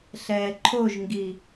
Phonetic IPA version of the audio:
ɬ ɛː ǃʰ o ʒ ŋ ɡ i

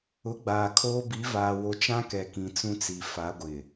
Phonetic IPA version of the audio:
ʊ˨˦ ɡ͡b aː˨ kʰ oː˦ b i˨˦ v aː˨ w o˨ t͡ʃ ã˦ k ɛ˨ k ĩ˨ t͡s ũ˦ t͡s i˨ f a˨˦ ɡʷ ɪ˨

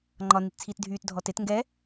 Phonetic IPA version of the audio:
ŋ͡ǃ ɒ n i t t͡sʰ iː t dʱ yː t dʱ ɔ t e t ŋ ɡ ɛ

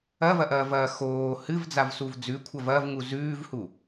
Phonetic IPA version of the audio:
ɐ v ɐ ʔ ɐː v ɐː x oː h ɨ v d͡z a v s u v d͡z ʉ kʷʰ ɐ v ɐ v ŋ u z ʉː v h u

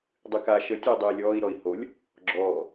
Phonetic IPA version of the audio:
dˤ ɨ k a ʃ ə tʲ ə i̯ dˤ ɨː lʲ ɔː i̯ ɾ ɔ i̯ h o lʲ | ɡ͡ǁ ɔː

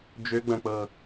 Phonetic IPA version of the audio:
d͡ʒ ø ɡ͡b ɐ̃ k͡p ɤ

